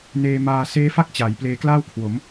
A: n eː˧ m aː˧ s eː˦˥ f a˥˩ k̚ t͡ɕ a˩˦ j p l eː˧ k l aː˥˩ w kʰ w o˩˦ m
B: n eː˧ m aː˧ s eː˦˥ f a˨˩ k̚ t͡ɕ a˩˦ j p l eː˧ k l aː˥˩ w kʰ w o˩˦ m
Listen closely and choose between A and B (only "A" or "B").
A